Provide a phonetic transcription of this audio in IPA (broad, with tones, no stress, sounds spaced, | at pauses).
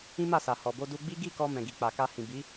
ĩ˦ m a˦˨ s a˨ h ɔ˨ b o˧ d u˧ ɡ͡b i˦ ɡ i˦˨ k ɔ˧ m ɛ̃˨ ɡ i˨ k͡p a˨ k a˧ h ĩ˨ b i˨˦